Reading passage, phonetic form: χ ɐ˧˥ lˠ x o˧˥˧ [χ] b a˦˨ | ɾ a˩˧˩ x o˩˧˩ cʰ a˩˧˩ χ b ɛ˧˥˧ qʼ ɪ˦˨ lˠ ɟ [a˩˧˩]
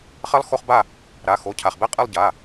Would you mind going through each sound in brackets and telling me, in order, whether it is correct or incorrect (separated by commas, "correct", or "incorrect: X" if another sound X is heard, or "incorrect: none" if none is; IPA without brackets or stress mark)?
correct, correct